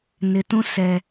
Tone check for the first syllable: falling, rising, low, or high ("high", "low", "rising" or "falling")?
low